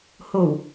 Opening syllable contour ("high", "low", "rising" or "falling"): low